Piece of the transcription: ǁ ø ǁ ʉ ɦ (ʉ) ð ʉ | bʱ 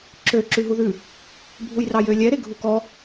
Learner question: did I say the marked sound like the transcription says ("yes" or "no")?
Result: no